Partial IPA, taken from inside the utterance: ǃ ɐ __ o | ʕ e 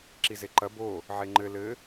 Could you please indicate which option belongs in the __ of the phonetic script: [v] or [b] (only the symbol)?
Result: b